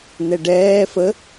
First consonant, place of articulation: alveolar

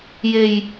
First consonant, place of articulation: palatal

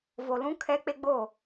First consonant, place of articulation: labial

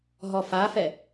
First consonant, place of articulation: glottal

